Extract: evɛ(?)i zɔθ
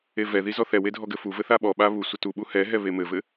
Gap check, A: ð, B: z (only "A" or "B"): A